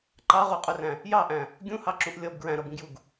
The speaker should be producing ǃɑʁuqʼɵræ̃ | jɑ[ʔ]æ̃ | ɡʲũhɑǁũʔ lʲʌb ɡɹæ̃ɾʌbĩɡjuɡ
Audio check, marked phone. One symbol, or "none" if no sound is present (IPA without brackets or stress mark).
ʔ